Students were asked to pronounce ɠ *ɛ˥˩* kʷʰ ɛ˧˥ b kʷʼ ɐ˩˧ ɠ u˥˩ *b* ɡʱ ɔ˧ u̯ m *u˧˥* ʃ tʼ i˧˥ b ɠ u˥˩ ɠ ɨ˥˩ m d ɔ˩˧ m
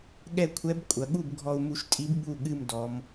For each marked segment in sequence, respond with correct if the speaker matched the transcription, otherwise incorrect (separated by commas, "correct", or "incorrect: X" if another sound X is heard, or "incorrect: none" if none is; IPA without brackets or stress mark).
correct, correct, incorrect: u˧